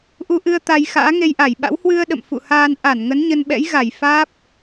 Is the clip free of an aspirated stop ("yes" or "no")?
yes